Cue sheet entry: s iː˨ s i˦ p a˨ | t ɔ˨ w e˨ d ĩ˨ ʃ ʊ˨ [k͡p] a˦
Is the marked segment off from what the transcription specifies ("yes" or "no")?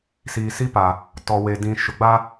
yes